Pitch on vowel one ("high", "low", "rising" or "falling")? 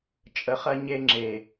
low